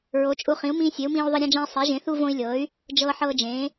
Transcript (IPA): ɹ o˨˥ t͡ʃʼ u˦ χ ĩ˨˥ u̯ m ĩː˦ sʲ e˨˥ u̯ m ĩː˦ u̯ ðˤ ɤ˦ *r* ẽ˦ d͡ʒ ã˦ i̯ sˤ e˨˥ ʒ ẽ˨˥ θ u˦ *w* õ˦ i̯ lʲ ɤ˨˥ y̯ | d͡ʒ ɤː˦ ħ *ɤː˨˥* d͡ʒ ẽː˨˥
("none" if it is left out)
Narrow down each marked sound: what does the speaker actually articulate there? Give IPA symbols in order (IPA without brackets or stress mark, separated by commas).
ɾʲ, v, ɤː˦